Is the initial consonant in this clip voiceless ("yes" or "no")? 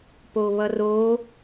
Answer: yes